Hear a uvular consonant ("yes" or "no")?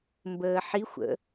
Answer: no